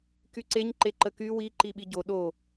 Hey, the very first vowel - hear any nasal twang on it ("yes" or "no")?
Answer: no